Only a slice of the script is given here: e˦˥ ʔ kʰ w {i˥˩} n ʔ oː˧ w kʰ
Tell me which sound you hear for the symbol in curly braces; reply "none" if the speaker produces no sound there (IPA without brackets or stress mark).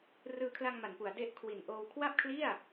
i˨˩